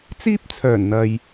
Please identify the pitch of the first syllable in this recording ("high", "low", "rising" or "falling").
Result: high